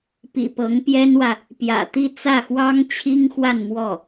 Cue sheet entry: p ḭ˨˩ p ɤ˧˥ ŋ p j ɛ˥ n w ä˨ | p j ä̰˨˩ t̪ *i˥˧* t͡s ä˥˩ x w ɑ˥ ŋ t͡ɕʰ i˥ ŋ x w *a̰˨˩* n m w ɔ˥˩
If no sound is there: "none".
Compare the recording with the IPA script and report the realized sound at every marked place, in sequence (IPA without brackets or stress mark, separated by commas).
i˥˧, a˥˧